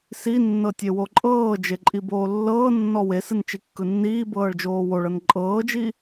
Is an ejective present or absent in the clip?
present